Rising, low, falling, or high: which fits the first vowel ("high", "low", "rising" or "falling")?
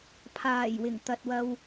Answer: low